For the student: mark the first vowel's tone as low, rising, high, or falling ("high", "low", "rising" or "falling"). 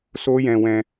high